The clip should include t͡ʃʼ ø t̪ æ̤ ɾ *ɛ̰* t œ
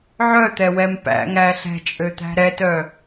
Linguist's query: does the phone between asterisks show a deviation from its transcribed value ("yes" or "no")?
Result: yes